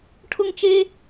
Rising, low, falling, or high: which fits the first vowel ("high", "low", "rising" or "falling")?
high